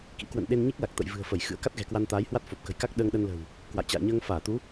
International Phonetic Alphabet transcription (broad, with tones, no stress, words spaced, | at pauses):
kḭ˧˥kwə̰˧˨n ɗe˧nɲi˦˥k̚la˨˩k̚t̪ə̰˧˨j vɨ̤˨˩ə̯fə˧˩j xɨ̰˧˥ə̯ka˦˥t̚ɣɛ̤˨˩ kwa˧nt̪aː˨˦jhwa˦˥t̚ fo˨˩p̚kə̤˨˩jka˦˥k̚ ɗəː˧ŋɗə˧nlə̤˨˩w | kwa̰˧˨jt͡ɕa̰ː˧˨ɲəː˧ŋ faː˧˩t̪u˨˦